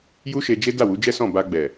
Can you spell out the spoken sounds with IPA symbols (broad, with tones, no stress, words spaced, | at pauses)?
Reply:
ju˦ʃe˧d͡ʒe˦ da˦˨wu˨˦d͡ʒɛ˦ sɔ̃˦˨ ba˧ɡ͡bɛ˨